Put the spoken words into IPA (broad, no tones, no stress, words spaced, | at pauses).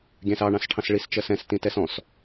ɡʲæ̃sɑ ɳɑ̃sʈʰɑ̃sɭis t͡ʃɜsɛ̃s tĩtɛsɔ̃s